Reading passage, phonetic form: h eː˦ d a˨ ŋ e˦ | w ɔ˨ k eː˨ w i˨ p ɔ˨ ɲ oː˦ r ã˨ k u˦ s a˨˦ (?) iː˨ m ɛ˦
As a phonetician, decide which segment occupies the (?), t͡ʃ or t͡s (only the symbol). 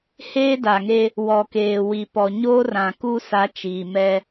t͡ʃ